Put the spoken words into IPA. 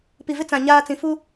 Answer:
p i˨ v ɪ˦ t͡s ã˨ ɲ aː˦ t͡s ĩ˨ f u˦

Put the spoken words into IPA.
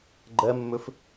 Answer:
ɡ͡ǃ ɜ mː ɵ f

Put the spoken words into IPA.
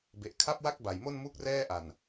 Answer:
b e˨˩ ʔ kʰ a˥˩ p̚ w a˥˩ k̚ b a˨˩ j m o˥˩ n m u˦˥ k̚ r ɛː˥˩ ʔ a˨˩ n

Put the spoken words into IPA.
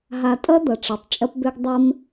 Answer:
ɦ a˨ tʼ ʌ˦ d̪ ʌ˨ ʈ͡ʂ ɐ˨ tˤ t͡ʃʼ ɐ˦ p b ø˦ ɡ dˤ ɐ˦ m

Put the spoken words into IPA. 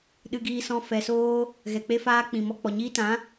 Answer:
ɗ ɨ˧ ɡ iː˧ s ɔ̃˧ f ɛ˨ s oː˧ | ɣ ɛ˨ k͡p e˧ f aː˧ k͡p ĩ˨ m ɔ˧ k͡p ɔ˨ ɲ iː˧ t ã˨˦

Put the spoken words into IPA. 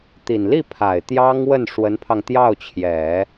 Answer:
t̪ i˨˩ n l i˥˩ pʰ a˨˩ ɪ̯ t̪ j ɑ˥ ŋ w ə˥˩ n ʂ w ə˧˥ n pʰ ɑ˧ ŋ t̪ j ɑ˥˩ ʊ̯ t͡ɕʰ j ɛ˨˩˦

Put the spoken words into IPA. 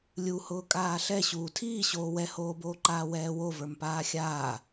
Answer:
lʲ u h ʊː kʼ aː ɬ ɛ ɕ uː tʰ iː ɕ oː w ɛ h oː b oː ǃ aː w ɛː w o v ə˞ m p aː xʲ aː

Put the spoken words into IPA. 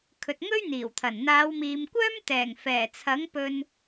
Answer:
kʰ ɵ˨ t̚ ŋ ɵ˥ ɥ n̪ iː˨˩ w t̪ʰ ɐ˨˩ n n̪ aː˨˧ w m iː˨ m kʷ œː˥ m t̪ ɛː˨˩ ŋ f ɛː˨˩ t͡sʰ ɐ˨˥ ŋ p ɵ˧ n

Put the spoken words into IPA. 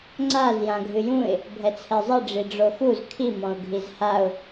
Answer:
ŋ͡ǀ a z j ã ɡʱ ɨ j ũ ɪ̯ | bʱ ɛ t͡sʰ ɛ zˤ ɨ ɖ͡ʐ i ɖ͡ʐ o x u z kʰ i m ɔ̃ ʊ̯ ɡʱ i z h a ʊ̯

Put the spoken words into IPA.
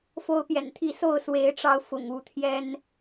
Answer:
f o˦ ʊ̯ p j ɛ̰˨˩ n t̪ʰ i˥˨ s o˥˨ ʊ̯ s w e˨˦ ɪ̯ ʈ͡ʂ ɑ˨˦ ʊ̯ f ʊ̰˨˩ ŋ u˥˨ t̪ʰ j ɛ˦ n

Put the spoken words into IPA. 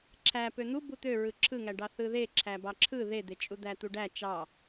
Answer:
ǁʰ æ p ø n̪ u b u t̪ ø ɹ ɯ ǁʰ ɯ ŋ æ ɖ ɑ θ ɯ ð e ǁʰ æ b ɑ ǁʰ ɯ ð e d̪ e t͡ʃʼ u d̪ æ t̪ u ɖ æ t͡ʃ ɑ

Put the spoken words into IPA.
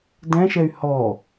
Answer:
d ɛ̃ ʃ ɛ y̯ h ɔ

